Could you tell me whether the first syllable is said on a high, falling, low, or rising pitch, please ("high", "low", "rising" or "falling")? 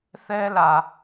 high